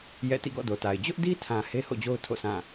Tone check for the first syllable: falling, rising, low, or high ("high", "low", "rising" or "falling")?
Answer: falling